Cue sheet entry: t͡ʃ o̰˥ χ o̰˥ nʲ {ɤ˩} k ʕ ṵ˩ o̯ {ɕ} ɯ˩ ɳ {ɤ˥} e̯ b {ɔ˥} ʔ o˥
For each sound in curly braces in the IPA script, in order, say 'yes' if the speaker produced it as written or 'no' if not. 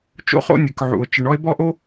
no, no, no, yes

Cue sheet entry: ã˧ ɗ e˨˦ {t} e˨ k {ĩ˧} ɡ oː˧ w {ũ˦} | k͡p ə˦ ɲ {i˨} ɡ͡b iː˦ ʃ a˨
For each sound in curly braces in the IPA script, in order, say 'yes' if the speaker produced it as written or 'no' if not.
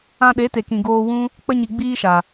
yes, no, yes, yes

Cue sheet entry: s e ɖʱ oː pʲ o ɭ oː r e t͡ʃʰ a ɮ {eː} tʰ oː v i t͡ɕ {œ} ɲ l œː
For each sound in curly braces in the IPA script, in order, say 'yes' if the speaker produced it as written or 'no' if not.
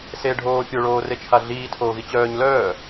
no, no

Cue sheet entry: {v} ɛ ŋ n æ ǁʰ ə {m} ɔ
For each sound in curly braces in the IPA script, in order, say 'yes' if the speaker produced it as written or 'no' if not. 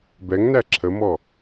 no, yes

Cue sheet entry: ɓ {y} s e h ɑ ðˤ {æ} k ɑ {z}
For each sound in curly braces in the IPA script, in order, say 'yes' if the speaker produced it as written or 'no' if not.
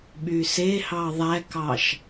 yes, yes, no

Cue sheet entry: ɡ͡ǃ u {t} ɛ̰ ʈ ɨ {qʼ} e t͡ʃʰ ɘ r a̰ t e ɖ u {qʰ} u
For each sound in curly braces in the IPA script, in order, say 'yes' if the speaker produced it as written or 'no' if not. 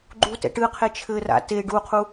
yes, no, yes

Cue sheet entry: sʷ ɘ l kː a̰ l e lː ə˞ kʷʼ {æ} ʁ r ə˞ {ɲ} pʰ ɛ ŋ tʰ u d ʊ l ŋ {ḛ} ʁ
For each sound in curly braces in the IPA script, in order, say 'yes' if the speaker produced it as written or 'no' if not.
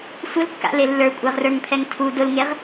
yes, no, no

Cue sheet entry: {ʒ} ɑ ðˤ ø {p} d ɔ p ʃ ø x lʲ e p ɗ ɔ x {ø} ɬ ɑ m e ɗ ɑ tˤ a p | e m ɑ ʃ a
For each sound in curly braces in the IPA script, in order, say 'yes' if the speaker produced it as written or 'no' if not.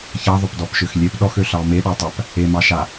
no, yes, yes

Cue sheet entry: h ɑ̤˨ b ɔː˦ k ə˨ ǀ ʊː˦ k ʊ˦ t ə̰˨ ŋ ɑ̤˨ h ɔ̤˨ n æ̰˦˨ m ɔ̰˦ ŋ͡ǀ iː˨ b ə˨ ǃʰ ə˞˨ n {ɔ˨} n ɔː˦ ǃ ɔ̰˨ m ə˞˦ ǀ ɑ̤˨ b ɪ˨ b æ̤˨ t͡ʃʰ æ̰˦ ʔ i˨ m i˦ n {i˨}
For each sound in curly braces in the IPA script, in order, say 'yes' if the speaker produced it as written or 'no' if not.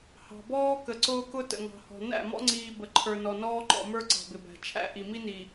yes, yes

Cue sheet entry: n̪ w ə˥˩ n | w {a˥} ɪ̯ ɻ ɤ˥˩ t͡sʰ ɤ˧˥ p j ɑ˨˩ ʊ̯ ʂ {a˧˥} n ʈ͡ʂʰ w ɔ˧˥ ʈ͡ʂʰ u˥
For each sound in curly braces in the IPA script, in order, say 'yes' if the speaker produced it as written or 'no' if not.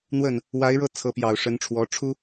no, no

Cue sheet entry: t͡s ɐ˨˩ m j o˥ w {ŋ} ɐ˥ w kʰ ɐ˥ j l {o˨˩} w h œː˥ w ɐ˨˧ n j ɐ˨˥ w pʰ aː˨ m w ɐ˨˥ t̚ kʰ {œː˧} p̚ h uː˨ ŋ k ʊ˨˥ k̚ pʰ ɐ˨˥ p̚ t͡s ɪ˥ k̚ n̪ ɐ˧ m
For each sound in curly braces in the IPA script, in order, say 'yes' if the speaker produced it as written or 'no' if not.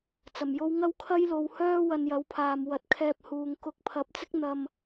yes, no, no

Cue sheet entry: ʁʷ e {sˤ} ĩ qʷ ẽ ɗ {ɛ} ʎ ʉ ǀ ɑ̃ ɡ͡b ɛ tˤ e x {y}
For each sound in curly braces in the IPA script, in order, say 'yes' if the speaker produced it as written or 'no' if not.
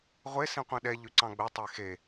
no, yes, no

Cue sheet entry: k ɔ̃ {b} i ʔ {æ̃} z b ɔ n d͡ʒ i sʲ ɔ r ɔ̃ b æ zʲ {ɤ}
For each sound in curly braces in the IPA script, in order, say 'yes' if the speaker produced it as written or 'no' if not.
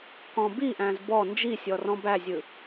yes, yes, no

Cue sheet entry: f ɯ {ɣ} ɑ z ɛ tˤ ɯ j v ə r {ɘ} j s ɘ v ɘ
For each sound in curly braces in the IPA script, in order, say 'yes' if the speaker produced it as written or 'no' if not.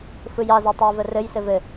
no, yes

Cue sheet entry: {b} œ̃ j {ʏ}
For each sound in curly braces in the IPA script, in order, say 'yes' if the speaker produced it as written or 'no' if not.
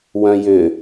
no, yes

